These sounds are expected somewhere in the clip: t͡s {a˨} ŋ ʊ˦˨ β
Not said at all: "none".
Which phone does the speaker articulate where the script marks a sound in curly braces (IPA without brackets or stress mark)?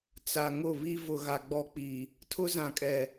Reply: a˨